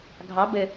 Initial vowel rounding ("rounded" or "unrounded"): unrounded